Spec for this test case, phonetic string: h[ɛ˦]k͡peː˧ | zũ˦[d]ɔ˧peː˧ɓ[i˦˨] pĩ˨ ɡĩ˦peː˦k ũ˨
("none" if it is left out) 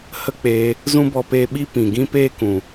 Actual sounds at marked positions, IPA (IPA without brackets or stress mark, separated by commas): ə˦, b, i˦